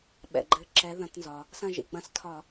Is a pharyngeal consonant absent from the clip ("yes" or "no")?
yes